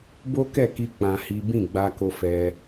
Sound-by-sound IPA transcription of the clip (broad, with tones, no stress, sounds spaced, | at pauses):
b o˦ k ɛ˦˨ k i˧ k͡p ã˧ h i˦ b ĩ˦˨ ɡ͡b a˧ k o˧ f ɛ˧